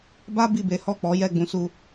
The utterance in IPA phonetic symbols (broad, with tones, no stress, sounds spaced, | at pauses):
b a˦ b i˦˨ b e˨˦ h ɔ˦˨ k͡p ɔ˨˦ j ɛ˦˨ ɡ͡b ũ˧ s u˧